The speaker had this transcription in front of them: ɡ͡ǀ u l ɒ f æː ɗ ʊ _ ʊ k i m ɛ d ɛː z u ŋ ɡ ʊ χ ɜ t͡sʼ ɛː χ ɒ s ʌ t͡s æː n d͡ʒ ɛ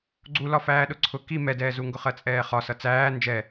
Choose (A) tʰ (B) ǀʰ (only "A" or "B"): B